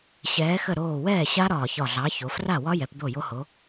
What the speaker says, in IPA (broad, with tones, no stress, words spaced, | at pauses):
ɕɛː˨˥xə˥˩ ɾoː˧˩wɛː˥˩ɕa˦˥ ɾɒː˧˩çɒ˧˩ɮɑ˨˥ ço˩˧ fra˥˩wɒ˦˥jɛ˩˧p d̪o˥˩jo˦˥ho˨˥